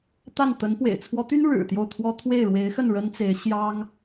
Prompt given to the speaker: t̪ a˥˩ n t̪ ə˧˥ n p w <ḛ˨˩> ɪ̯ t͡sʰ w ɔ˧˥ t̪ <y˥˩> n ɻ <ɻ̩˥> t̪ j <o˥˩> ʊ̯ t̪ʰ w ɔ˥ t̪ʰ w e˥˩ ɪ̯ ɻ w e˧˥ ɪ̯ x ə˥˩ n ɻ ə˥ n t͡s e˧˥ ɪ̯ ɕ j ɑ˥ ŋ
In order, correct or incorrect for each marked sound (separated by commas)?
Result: correct, incorrect, incorrect, correct